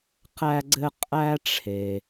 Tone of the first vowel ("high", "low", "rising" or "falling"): high